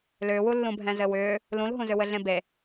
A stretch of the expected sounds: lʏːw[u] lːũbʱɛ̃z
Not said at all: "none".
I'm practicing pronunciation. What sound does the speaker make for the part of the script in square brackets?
u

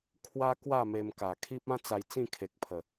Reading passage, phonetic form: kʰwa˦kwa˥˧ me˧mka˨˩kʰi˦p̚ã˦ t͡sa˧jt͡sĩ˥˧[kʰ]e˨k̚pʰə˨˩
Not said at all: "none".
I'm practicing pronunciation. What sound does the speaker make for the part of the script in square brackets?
kʰ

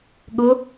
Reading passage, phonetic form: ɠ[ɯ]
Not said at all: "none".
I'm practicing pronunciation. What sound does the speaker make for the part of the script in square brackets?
ʊ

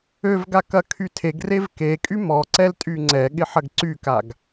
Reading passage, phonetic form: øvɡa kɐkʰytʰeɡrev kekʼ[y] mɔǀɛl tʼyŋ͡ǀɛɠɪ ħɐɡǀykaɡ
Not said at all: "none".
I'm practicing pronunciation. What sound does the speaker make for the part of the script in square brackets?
y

